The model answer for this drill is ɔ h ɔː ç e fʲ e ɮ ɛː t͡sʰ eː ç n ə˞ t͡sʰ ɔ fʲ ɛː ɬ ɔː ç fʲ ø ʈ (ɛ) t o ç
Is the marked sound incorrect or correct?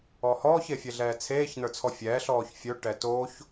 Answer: correct